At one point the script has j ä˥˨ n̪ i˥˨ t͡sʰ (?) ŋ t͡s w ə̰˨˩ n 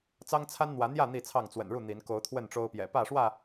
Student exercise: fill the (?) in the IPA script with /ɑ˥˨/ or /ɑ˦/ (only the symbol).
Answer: ɑ˥˨